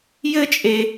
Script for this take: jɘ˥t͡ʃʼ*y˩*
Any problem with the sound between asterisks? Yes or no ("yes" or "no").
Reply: yes